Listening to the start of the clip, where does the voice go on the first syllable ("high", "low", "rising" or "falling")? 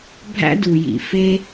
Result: high